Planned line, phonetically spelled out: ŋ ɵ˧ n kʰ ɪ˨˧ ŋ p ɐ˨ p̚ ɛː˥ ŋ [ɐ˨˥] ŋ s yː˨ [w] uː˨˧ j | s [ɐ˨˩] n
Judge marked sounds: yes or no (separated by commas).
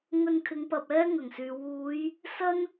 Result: no, yes, no